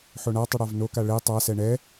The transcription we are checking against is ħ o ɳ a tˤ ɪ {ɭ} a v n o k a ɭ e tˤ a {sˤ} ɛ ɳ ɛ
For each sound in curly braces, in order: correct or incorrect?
incorrect, incorrect

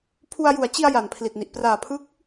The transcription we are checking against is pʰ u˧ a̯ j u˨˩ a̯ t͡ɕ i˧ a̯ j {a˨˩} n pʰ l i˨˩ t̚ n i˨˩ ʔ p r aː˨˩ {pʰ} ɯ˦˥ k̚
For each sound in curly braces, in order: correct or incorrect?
correct, correct

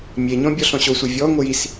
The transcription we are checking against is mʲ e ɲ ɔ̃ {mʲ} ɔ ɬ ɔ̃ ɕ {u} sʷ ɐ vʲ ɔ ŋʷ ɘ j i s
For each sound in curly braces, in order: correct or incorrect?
incorrect, incorrect

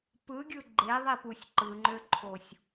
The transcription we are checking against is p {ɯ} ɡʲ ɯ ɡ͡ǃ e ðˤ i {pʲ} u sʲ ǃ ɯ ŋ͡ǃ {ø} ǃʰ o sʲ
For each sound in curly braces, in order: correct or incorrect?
correct, incorrect, correct

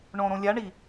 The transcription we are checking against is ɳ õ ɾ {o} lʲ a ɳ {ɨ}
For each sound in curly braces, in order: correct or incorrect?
incorrect, incorrect

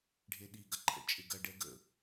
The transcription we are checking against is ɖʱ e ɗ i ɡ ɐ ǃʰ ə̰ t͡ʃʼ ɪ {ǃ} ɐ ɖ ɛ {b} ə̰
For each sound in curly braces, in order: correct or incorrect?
incorrect, incorrect

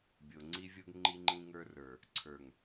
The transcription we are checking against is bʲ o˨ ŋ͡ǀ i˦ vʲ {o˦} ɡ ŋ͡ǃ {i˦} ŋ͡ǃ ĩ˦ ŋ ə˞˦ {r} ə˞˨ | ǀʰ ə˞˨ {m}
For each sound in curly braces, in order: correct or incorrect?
correct, correct, correct, incorrect

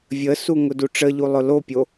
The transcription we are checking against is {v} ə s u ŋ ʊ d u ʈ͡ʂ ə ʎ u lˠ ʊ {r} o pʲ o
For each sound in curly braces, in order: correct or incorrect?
incorrect, incorrect

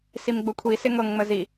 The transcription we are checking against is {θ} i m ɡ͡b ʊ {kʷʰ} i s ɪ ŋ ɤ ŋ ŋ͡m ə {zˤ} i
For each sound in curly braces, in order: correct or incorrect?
incorrect, correct, incorrect

